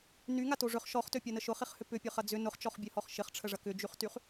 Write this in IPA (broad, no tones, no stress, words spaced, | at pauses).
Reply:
nyŋato ʐʏχ ʃɔχtøpʲɐnə ʃʊχiχhʏ pʏpʲøχɐ d͡zʏ nʊχt͡ʃɔχbʲøhɔχ ʃɪχʈ͡ʂʰəʐɐ kʏd͡ʒyχtyχ